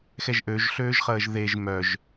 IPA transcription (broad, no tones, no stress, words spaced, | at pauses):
xɛʒʔøʒɬøːʒχəːʒ ðeʒ mœʒ